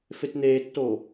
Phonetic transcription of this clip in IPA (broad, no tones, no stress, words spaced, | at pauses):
fetn̪eːtːoː